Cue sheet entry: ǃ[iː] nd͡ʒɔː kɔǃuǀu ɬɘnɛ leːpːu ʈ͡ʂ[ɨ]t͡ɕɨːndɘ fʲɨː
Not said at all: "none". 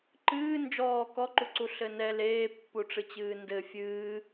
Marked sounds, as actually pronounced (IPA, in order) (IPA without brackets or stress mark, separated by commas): ɨː, ɨ